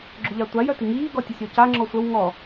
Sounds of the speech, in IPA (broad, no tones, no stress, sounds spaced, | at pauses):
ɡ͡ǁ ʊ ʎ a tʷ a j œ t i ŋ iː ɡ ɔ tʲ ɐ sʲ ɔ c a ŋ͡ǁ ɔ sʷ ɐ w ŋ ɔ